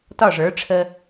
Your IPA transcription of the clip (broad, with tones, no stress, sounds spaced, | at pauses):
t ɒ˦˨ ʐ ə˞˨˦ ʈ͡ʂʰ ə˦